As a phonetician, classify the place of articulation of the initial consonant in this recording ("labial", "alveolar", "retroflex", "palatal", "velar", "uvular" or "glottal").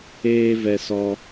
labial